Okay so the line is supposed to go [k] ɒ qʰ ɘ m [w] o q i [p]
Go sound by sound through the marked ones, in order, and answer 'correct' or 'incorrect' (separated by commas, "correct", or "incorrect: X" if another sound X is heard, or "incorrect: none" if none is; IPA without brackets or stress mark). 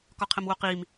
correct, correct, incorrect: m